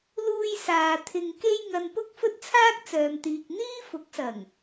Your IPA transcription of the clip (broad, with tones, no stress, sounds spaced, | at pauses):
l uː˧ j s aː˨ t̪ʰ ɪ˧ ŋ k e˥ j ŋ ɐ˧ n p ʊ˥ k̚ f ɵ˥ t̚ t͡sʰ aː˥ k̚ t͡s œː˨ m t̪ iː˨ k̚ n̪ iː˥ f ʊ˨˥ k̚ s ɐ˨˩ ŋ